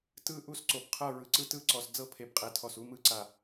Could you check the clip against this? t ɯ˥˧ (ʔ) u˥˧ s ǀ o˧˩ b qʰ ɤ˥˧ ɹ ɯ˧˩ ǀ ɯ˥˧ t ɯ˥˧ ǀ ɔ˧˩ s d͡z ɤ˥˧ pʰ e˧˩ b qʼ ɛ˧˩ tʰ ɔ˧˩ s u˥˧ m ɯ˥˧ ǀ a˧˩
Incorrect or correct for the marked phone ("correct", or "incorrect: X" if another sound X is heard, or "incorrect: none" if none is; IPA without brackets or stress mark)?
correct